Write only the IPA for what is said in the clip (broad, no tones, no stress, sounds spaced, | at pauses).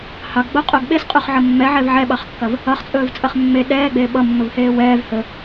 h ɑ ɡ ɡ͡b o qʼ o ɡ ɓ e s qʼ ɵ χ ʕ ʌ mː ɛ ʕ ɛ v ʕ ɛ ɓ ɑ χ kː ɐ v | ʌ χ t͡sʼ ɵː v t͡sʼ ɐ χ mː e ɗ ɛː ɡ͡b eː ɓ ʌ mː ɵ v h eː w ɛː v h ɵ